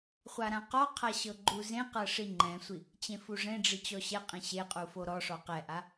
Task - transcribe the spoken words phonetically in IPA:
χʷaɾãqɔqʰa ɕɤɡ͡ǃuzẽqɤ ʂiŋ͡ǃɛ̃sʷi | t͡ɕẽfuʐẽɖ͡ʐi t͡ɕɔɕɛqʼẽ ɕeqʼu foɾɔʂɔ qɛʔa

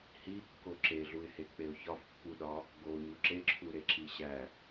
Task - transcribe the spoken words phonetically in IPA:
hikːo ǁeɮuɪ̯hek͡peʊ̯ çɒfpːuɗɒ | ɡoɲu ǁeǁʰuɾeǁi ɕæ

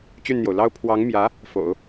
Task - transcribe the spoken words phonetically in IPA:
t͡ɕy˥˩nn̪jo˩ʊ̯ lɑ˥ʊ̯ pʰwɑ˧˥ŋmjä˧˥ | fo̰˨˩˦ʊ̯

